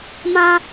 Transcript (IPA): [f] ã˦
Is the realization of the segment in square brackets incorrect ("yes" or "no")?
yes